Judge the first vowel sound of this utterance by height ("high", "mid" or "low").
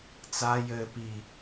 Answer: low